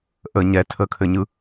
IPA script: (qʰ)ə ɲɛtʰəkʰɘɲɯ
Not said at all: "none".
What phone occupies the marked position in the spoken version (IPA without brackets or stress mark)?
ʔ